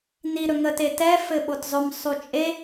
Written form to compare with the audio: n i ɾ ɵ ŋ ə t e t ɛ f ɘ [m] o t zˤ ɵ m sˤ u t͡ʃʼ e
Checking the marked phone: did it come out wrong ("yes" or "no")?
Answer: yes